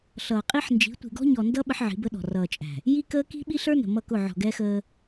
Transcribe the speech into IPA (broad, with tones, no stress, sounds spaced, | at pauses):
ɬ ʌː˨ qʼ i˦ ħ n d͡ʒ i̤˨˦ tʷ i̤˨ ɡ ɔ̤˦ ɲ ɔ˨ n d ʌ˦ ɓ ə˦ ħ ʕ i̤˨˦ b ə˦ ɗ ɔ̤˨ r ʌː˨ t͡ʃʼ æ̤˨ | j i˦ k əː˦ k i̤˦ ɓ i˦ ɬ ə˞˦ n ə̤˨ m ʌ˦˨ k ʊ˦˨ ʕ ɔ̤˨ ɡ ɛ˦ x əː˦